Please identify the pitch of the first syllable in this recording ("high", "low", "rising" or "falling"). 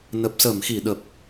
low